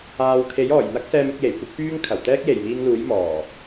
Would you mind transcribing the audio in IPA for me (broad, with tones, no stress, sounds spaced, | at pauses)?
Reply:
aː˨ w kʰ e˨˥ j ɔː˨˩ j n̪ ɐ˥ k̚ s ɛː˧ m ɪ˧ k̚ j e˨˩ j kʷ ɪ˥ k̚ p yː˥ ŋ kʰ ɐ˨˩ w t̪ ɛː˥ k̚ j e˨˩ j m iː˧ ŋ l uː˨˥ j m ɔː˨˩